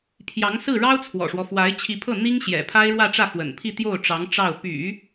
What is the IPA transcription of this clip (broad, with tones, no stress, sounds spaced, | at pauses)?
pʰ j ɑ˧˥ ŋ s ɹ̩˥˩ ɻ ɑ˥ ʊ̯ t͡sʰ w ɔ̰˨˩ ʂ w ɔ˦ f w a˧˥ ɪ̯ t͡ɕʰ i˧˥ pʰ ɤ˥˩ n̪ i˥ ŋ ɕ j ɛ̰˨˩ pʰ a˥ ɪ̯ ɻ w ä˥˧ ʈ͡ʂ ä˥˩ x w ə̰˨˩ n pʰ i˥˧ t̪ j o˥˩ ʊ̯ ʈ͡ʂ ɑ˧˥ ŋ ʈ͡ʂ ɑ˥˩ ʊ̯ p y̰˨˩˦